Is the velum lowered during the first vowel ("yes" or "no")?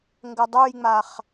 no